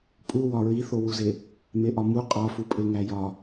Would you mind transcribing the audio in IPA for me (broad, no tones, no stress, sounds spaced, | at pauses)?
pʼ u w ɒ ɹ i θ o w u z e | m e ʔ ɒ m u qʼ ɒ f u pʼ e ŋ æ j ɒ